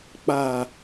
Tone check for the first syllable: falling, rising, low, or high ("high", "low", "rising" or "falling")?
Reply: low